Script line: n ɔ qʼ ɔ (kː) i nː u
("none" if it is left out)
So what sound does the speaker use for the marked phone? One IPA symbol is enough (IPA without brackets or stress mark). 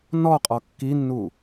kː